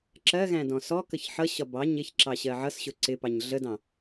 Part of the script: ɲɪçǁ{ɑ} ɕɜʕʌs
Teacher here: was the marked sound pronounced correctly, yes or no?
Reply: yes